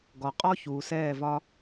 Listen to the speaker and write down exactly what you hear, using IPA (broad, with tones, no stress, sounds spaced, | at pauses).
ɡ ɔ˨ qʼ ɔ˦ ç uː˨ s ɛː˦˨ v ɒ˦